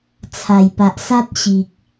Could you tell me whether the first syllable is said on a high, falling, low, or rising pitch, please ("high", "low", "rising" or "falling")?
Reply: low